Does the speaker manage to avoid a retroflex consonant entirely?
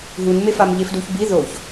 yes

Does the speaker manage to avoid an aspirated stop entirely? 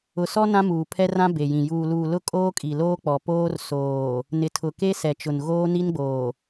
no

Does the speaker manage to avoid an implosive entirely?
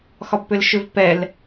yes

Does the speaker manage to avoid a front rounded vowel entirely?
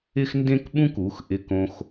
yes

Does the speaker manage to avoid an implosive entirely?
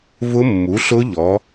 yes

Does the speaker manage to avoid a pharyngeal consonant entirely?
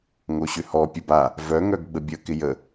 yes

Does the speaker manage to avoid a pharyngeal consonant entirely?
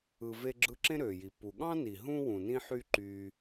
no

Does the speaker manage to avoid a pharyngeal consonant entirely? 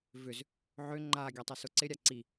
no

